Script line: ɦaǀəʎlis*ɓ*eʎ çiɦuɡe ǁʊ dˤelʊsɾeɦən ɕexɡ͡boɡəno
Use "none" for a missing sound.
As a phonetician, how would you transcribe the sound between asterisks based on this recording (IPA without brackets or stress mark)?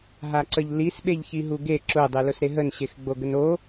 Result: ɓ